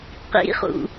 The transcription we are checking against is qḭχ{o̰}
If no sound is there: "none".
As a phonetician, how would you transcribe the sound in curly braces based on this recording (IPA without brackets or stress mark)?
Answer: ṵ